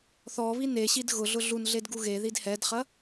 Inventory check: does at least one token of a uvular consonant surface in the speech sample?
yes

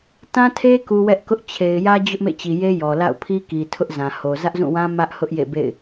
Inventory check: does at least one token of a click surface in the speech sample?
no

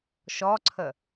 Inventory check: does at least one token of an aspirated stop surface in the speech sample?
yes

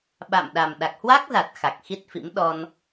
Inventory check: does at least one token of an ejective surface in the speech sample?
no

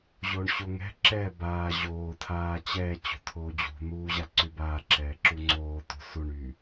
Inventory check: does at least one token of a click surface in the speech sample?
yes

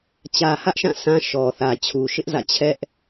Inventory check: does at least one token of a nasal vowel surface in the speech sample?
yes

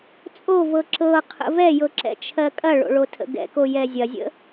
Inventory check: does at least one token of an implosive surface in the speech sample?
no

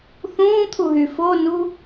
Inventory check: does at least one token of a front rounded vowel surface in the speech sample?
yes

